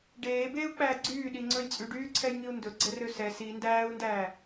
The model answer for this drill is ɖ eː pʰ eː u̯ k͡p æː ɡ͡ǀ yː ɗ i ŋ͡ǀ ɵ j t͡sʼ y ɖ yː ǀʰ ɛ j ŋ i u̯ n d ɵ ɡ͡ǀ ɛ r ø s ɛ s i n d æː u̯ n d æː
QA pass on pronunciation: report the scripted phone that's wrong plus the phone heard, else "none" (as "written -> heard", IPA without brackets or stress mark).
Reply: pʰ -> b